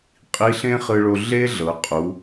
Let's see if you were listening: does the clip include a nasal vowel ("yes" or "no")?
yes